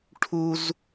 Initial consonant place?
retroflex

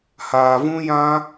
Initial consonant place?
glottal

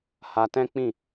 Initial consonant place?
glottal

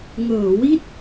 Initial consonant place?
velar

